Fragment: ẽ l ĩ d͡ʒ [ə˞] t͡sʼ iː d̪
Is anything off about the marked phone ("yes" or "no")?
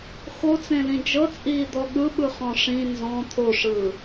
yes